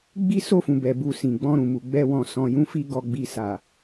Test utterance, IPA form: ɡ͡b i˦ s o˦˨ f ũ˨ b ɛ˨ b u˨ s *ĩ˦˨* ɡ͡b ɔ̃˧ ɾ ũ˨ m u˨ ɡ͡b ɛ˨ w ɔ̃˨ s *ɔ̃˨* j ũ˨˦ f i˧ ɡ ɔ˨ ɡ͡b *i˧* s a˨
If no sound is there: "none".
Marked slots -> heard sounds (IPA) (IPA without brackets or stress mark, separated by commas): ĩ˨, ɔ̃˨, i˨